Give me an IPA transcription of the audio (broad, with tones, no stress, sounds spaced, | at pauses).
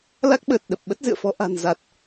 l a˦˥ k̚ ɓ əː˨˩ t̚ ɗ ə˨˩ p̚ ɓ ə˦˥ t̚ z ɨ̰˧˨ ə̯ f ɔ˧ ʔ a̤˨˩ n z a˨˩ t̚